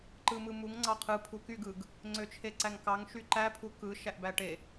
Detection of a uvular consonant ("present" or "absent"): present